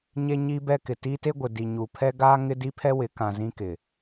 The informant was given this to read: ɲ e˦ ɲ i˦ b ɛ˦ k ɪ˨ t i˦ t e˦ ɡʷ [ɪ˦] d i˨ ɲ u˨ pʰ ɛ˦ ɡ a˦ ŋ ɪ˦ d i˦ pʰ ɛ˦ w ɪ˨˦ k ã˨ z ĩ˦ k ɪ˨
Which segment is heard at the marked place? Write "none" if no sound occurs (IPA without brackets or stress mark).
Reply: ɪ˨